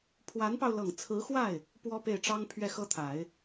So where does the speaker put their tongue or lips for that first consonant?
lips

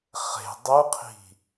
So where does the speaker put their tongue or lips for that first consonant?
uvula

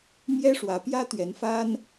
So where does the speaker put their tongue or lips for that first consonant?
lips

